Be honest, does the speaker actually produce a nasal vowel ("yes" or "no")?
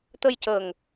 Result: no